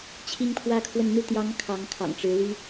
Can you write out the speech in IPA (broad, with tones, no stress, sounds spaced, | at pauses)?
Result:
t͡ɕʰ i˥ ŋ pʰ w ä˥ kʰ w ə˥˧ n n̪ u˥˩ t̪ j ɑ˧˥ ŋ kʰ ɑ˧˥ ŋ kʰ ɑ̰˨˩ ŋ ʈ͡ʂ ɻ̩˧˥ l y˥